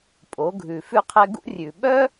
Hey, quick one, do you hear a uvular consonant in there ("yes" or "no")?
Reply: yes